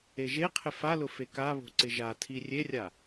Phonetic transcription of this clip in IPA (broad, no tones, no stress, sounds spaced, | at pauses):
e ʒ e qʰ ɪ f a l ʊ f e k a β o̤ ǀ ɪ ʒ a tʰ i rʲ e rʲ a